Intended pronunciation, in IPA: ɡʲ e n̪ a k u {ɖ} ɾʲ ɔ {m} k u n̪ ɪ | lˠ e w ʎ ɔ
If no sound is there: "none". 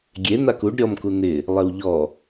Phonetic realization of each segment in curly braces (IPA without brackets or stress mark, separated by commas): ɖ, m